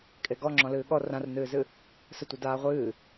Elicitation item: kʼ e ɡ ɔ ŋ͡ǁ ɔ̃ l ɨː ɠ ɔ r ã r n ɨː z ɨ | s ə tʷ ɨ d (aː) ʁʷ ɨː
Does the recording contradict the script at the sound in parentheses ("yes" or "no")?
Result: no